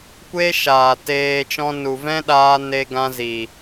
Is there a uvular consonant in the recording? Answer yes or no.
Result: no